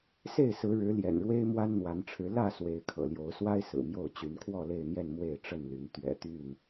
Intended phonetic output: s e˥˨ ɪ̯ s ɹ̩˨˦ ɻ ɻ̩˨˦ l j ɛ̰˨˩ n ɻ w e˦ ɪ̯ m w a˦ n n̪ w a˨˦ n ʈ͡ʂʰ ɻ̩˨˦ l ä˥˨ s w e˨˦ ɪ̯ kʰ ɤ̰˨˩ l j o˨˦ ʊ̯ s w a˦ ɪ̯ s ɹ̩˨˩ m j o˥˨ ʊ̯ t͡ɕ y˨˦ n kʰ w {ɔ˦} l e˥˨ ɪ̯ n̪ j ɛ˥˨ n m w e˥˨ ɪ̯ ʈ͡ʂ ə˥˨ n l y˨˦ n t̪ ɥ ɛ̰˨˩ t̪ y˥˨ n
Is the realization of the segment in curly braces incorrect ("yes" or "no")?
yes